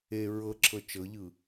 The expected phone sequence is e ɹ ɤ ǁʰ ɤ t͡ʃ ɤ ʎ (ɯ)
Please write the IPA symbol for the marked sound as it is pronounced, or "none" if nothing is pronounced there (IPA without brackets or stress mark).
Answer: ɯ